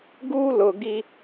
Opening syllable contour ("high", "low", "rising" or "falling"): high